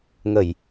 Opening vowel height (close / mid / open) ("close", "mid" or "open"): mid